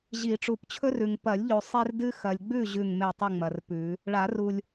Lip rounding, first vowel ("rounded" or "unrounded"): unrounded